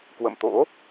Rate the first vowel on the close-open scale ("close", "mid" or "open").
mid